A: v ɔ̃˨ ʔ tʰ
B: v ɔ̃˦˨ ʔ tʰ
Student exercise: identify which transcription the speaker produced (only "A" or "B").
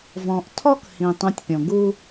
A